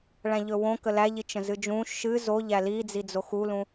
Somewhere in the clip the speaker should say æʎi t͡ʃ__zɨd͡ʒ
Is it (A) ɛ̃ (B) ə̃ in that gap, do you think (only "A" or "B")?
B